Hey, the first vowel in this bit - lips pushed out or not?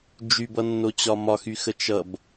yes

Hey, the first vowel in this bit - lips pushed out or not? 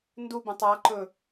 yes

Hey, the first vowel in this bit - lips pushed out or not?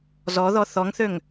yes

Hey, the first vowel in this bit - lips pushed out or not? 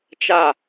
no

